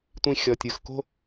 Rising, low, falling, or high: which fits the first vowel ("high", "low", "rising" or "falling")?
low